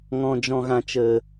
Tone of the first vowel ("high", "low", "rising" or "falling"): low